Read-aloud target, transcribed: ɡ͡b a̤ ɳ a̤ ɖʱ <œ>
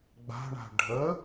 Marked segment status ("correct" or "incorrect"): incorrect